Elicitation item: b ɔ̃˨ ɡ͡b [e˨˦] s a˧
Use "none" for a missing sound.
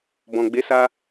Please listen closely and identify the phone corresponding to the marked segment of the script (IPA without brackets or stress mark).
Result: e˨˦